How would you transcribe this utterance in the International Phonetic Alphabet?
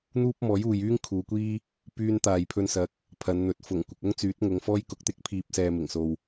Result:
n̪ uː˥ p̚ m ɔː˨˥ j uː˨ j yː˥ ŋ kʰ uː˨˧ kʷ iː˥ | p yː˧ n t̪ aː˨ j pʰ ɵ˧ n s ɐ˨˥ k̚ | pʰ ɐ˨˧ n n̪ ɵ˨˥ t̚ f ʊ˨˩ ŋ kʷ ɪ˨ k̚ ʊ˥ ŋ t͡s yː˨˥ t̚ ŋ ʊ˨˧ ŋ f ɔː˥ j k ʊ˨˥ k̚ t̪ ɪ˨˥ k̚ pʰ iː˨ p̚ s ɛː˨ m ɪ˨˩ ŋ s o˨ w

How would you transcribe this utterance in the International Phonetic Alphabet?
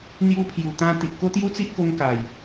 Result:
n̪ j u˧ pʰ j u˨˩ t̪ ã˧ t̪ i˨ ʔ k o˦ t̪ j u˦ t͡s i˦ ʔ k o˧ ŋ k a˨˩ j

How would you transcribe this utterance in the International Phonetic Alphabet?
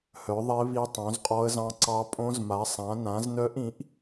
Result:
h œ˩˥ ðˤ e˧˥ β i˧˥ tˤ õ˩˥ z qʼ ɔ˧˥ ə̯ z ɑ̃˧˥ ǀ ɑ˧˥ pʼ õ˧˥ z m a˩˥ sˤ ã˩˥ n ã˩˥ z n œ˧˥ ʔ ĩ˩˥ ʔ

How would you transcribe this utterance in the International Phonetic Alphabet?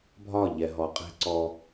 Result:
bʱ ɒ˦˨ ʎ ɛ˨ ɦ ɔ˨ qʼ ɛ̤˦ ǀ ɔ˧

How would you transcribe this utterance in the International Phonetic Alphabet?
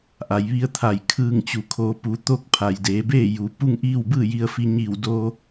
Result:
ʔ a˩˧ j ʋ i˧˥ ə̯ t̪ʰ a˧˩ j kʰ ɯː˧˩ ŋ t͡ɕ u˩ kʰ oː˩˧ p u˩˧ t̪ o˥˨ k̚ pʰ a˩ j d eː˩˧ b eː˥˨ j u˩ p u˥˨ ŋ ʔ iː˥˨ w b ɯː˥˨ j i˧ ə̯ f i˧ ɲ iː˧˩ w d o˧

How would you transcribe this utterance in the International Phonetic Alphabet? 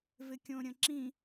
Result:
v ɪ kʲ õ ɾʲ ə̃ ǁ ĩ

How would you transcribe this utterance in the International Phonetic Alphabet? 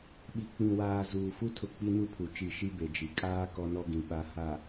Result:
ɓ i˨ k͡p ĩ˨ w aː˨ z uː˨ f u˦ tʰ ʊ˨ k͡p i˦ n u˦ pʰ u˨ t͡ʃ i˦˨ ʃ i˦ b e˨ d͡ʒ i˨ kʼ aː˦ k ɔ˦ n ɔ˦ ɡ ĩ˨ ɓ a˨ h a˨

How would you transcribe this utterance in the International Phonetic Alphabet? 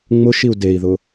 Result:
ŋ͡m ʊ ʃ i u̯ d e i̯ ð ʊ

